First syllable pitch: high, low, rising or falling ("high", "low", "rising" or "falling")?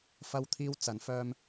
high